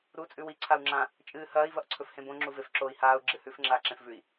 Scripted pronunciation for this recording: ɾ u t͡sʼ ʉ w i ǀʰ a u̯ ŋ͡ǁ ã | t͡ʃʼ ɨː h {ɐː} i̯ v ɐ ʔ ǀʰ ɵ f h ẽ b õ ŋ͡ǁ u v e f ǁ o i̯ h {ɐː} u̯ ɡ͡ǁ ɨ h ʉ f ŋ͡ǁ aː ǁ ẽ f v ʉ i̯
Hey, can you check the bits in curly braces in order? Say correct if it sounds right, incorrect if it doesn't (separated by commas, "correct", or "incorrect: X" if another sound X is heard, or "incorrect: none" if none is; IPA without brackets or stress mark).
correct, incorrect: aː